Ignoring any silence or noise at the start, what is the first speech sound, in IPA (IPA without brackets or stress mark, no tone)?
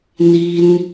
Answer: n